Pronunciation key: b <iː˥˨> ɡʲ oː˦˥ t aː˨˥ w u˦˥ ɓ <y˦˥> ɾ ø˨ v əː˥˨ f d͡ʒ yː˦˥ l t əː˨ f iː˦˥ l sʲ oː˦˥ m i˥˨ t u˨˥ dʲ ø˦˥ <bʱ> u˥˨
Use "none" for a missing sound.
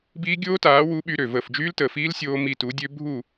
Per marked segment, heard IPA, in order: iː˦˥, y˦˥, bʱ

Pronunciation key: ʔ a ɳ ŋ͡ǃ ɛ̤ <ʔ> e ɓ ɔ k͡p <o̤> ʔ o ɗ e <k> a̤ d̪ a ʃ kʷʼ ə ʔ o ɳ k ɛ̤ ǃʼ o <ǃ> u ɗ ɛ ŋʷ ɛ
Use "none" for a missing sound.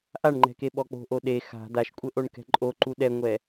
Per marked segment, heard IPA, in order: k, o̤, x, ǃ

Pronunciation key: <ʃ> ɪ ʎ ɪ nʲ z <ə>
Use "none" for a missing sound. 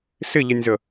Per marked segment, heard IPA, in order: s, ə

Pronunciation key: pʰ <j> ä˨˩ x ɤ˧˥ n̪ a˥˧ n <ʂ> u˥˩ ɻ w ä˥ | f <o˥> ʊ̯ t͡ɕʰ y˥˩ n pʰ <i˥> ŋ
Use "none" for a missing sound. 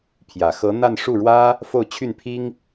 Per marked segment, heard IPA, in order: j, ʂ, o˥˧, i˥

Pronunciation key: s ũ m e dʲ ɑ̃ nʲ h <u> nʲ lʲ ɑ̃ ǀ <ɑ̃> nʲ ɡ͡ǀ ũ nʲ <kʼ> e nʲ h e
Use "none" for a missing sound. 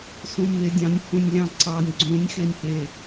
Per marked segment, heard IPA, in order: ũ, ɑ, x

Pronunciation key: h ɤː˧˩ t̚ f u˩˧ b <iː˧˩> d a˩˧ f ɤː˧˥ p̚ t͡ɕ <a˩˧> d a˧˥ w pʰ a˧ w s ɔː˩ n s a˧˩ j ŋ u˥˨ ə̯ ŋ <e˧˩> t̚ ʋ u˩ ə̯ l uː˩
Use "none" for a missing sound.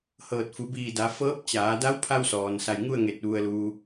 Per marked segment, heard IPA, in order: iː˧˩, aː˩˧, e˧˩

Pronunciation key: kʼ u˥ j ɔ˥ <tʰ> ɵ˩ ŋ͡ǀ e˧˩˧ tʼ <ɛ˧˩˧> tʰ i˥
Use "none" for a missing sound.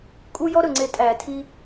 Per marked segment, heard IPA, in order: ɾ, æ˧˩˧

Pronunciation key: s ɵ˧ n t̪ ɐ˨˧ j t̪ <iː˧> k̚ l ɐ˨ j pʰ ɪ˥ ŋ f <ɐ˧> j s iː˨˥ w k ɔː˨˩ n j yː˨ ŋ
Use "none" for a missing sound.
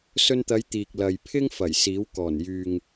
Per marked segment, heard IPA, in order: iː˨, ɐ˨˩

